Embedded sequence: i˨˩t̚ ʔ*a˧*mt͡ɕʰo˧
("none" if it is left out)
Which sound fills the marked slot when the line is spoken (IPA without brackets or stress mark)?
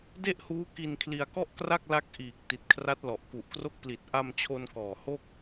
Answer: a˧